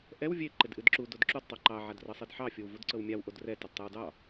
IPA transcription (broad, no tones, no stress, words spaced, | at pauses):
ʔɛw vʲe ǃɪdʔɨdǁu dodǁud tˤoǃɑ ʕadrɤsˤedħɑ fʲowvudǀɤwmʲaw ʔodrɛ tɪdtˤewdɑ